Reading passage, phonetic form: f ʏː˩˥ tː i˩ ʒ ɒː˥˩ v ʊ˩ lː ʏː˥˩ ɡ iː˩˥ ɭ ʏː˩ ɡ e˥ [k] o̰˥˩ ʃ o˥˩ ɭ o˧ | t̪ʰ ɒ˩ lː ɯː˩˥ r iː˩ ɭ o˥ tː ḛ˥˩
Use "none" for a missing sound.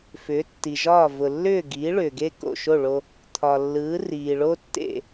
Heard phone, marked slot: k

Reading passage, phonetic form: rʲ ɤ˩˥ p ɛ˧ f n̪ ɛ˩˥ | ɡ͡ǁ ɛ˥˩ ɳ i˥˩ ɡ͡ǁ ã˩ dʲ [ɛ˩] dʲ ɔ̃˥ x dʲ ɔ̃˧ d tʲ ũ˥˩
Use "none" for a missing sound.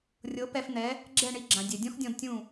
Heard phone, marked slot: ɛ˩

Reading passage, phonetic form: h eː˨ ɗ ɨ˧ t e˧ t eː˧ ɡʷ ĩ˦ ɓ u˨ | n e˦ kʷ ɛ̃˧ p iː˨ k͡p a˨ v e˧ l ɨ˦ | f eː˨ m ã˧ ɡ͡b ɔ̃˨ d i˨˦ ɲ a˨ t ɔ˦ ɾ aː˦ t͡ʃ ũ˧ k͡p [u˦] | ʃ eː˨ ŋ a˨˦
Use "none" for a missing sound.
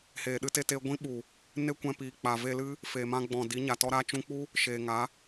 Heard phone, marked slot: u˦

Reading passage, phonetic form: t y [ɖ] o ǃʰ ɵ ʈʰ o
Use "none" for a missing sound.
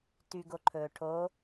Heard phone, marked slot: ɡ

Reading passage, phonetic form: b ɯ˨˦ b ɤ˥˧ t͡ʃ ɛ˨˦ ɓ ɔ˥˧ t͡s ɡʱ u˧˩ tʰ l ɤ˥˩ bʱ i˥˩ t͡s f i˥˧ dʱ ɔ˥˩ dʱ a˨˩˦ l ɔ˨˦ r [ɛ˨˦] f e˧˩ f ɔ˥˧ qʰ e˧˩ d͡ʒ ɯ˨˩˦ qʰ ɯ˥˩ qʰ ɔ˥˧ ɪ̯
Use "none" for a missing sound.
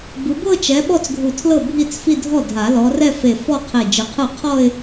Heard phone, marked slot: ɛ˥˧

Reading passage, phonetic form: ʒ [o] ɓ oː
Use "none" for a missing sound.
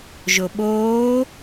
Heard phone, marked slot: o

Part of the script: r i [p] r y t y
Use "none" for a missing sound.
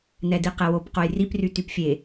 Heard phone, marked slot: p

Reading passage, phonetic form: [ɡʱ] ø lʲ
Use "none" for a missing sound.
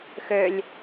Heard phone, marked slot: x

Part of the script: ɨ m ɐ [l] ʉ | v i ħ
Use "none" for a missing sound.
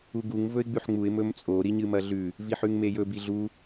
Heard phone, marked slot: ɮ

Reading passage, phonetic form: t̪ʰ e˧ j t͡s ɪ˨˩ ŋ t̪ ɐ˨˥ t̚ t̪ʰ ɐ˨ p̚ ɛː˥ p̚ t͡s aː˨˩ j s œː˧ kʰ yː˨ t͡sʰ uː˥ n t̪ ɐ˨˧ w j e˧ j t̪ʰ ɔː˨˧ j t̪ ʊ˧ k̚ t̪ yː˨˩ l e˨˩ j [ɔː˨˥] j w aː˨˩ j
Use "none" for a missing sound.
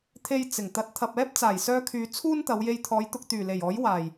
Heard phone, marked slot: ɔː˨˥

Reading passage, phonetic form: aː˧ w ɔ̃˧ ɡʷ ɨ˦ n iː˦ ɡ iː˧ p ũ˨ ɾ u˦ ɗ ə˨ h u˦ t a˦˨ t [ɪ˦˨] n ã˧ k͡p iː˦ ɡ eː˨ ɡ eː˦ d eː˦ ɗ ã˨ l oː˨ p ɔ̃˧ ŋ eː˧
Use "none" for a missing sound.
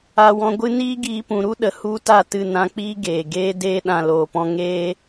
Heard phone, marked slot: ɨ˦˨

